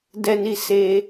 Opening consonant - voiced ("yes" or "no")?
yes